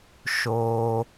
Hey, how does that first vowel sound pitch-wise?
low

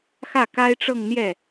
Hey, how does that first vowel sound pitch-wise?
falling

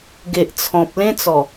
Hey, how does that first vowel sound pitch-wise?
low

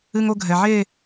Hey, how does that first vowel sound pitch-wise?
high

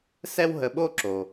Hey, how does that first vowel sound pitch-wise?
high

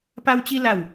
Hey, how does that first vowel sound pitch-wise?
high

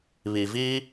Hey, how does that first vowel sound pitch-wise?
low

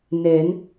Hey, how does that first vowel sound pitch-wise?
rising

